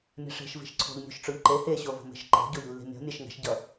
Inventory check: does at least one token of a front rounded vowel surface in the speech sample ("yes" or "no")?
no